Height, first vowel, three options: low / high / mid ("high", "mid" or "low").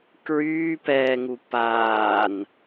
high